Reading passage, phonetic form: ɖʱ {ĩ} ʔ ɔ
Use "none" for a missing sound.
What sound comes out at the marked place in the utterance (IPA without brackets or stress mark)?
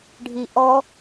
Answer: i